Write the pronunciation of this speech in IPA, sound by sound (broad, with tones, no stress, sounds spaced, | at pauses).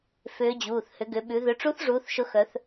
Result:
f ʏː˧˥ d͡ʑ uː˩˧˩ θ h ʏ˩˧ ɡ ʏ˩˧ ɓ ʉ˩˧ ð ʏ˩˧ ʈ͡ʂ u˧˥ θ ʐ uː˩˧ θ ʃ ʊ˧˥ x œ˩˧ θ